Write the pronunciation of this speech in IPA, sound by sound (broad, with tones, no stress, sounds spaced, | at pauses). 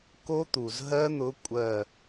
k o˦˥ t̪ u˩ z ɦ ɜ˦˥ n̪ ʊ˨˦ kʷʼ ɜ˧˩